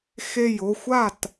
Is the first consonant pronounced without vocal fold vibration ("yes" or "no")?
yes